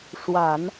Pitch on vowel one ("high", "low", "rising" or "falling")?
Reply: low